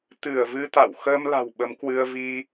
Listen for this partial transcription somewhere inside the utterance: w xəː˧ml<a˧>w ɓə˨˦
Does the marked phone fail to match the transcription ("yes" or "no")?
yes